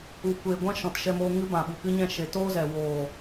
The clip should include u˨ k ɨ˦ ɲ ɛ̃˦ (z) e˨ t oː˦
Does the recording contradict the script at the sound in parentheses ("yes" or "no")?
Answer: yes